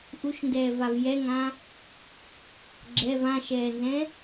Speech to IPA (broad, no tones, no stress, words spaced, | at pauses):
ʔuʃndɛːvav jɛŋã | ɡ͡ǁɛv ãʃɛːnzɛ̃